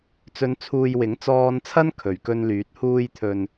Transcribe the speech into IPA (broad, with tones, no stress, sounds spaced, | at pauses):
t͡s ɵ˨˧ n t͡sʰ uː˨ j w ɪ˨˥ ŋ t͡s ɔː˧ n t͡sʰ ɐ˥ n kʰ ɵ˨˩ ɥ k ɵ˧ n l yː˨˥ t̚ h uː˧ j t̪ʰ ɵ˨ n